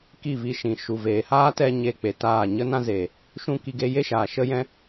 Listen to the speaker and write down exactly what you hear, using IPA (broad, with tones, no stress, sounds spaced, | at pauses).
k i˦˨ v i˧ ʃ ĩ˨ ʃ u˨ v eː˨ h aː˦ t ɛ˦ ɲ e˧ k͡p e˨ t aː˦˨ ɲ ə˦ n ã˦ z eː˨ | ʃ ũ˦ k i˧ ɡ e˦ j e˦ ʃ aː˨ ʃ ə˦ j ɛ̃˦